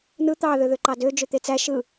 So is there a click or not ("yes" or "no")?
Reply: yes